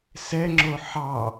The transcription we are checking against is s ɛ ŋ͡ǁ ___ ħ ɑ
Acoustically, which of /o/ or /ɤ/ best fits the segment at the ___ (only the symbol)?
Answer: o